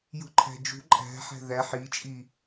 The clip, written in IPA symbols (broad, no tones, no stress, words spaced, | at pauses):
jṳǃʰæ̤d͡ʒṳ ǃʼæ̤ ħæ̤ðæ ħit͡ʃʼi